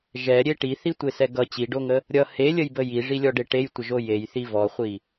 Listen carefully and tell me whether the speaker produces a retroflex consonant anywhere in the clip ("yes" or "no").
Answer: yes